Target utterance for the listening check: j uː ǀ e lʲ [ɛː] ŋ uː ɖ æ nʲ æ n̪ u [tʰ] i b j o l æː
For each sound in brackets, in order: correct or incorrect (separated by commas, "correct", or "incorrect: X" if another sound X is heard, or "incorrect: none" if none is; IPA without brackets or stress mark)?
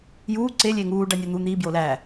incorrect: eː, incorrect: n̪